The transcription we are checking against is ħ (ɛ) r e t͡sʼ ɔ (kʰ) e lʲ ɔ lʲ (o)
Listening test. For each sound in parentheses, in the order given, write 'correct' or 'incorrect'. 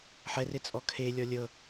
correct, correct, incorrect: ɤ

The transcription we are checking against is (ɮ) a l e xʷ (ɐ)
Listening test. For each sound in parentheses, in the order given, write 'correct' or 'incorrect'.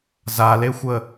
incorrect: z, incorrect: ə

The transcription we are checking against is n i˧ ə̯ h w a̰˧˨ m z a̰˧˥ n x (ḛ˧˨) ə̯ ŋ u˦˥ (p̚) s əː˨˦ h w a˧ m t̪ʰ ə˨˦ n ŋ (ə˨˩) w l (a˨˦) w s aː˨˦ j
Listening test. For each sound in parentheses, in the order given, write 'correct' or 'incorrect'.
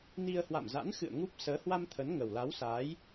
incorrect: ɨ̰˧˨, correct, correct, correct

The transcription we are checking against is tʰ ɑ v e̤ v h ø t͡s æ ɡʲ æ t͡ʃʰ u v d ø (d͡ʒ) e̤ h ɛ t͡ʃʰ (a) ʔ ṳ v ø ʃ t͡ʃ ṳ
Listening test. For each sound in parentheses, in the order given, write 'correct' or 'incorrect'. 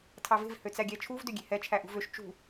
incorrect: ɡʲ, incorrect: æ

